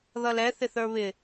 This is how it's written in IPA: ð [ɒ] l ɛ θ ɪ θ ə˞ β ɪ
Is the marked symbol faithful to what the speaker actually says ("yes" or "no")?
no